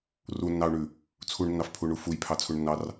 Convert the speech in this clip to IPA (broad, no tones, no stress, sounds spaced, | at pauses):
r u nː ɑ u̯ ɳ ʉ | t͡sʰ u ɳ nː ɑ f pʰ u ɳ u f u j pʰ ɑ t͡sʰ u ɳ nː ɑ r